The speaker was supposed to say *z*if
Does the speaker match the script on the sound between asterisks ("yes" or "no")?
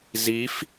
yes